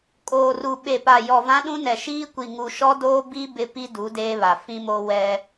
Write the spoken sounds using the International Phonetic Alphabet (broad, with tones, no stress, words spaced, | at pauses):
kʼoː˨ru˨ ɓe˨pa˨ jɔ˨vã˦ɗũ˦nɛ˨ ʃiː˦ kʷi˨ŋu˨ʃɔ˦doː˦ bi˦ bɪ˦ pi˦du˨˦ deː˦βa˨ fĩ˦mo˦ wɛ˦